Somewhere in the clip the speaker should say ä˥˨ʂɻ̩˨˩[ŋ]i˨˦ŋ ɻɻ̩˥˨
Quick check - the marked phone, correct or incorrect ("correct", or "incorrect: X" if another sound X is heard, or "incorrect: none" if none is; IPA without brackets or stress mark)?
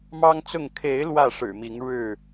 incorrect: m